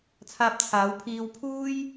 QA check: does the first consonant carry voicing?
no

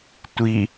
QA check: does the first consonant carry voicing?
no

